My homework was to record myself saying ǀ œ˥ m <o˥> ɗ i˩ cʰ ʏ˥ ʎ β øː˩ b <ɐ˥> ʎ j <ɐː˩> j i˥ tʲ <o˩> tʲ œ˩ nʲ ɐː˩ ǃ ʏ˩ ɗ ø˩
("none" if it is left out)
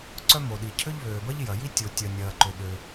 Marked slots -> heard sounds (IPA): o˩, ɐ˥, ɐ˩, o˩

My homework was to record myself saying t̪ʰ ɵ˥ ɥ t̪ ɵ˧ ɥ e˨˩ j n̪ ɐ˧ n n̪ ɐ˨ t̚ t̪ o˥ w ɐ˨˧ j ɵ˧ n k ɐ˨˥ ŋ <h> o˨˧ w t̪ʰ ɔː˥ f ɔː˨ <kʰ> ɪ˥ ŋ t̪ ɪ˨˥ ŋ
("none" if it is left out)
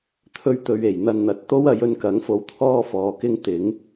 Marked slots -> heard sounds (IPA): f, k

